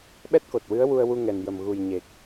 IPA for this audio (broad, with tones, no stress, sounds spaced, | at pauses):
ɓ ɛ˦˥ t̚ k o˨˩ t̚ w ɨ˧˥ ə̯ w u˧ ə̯ w u˧ ŋ ɛ˨˩ n j ə˨˩ m ɣ u˨˩ j ɲ e˨˩ k̚